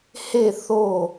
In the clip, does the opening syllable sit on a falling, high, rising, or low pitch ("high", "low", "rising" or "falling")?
falling